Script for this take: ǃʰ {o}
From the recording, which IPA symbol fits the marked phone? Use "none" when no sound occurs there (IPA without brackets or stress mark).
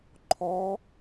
ɔ